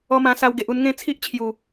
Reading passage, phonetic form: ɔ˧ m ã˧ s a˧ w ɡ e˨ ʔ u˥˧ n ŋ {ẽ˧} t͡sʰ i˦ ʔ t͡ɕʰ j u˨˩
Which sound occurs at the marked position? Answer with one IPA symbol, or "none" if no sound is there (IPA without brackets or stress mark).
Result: ẽ˦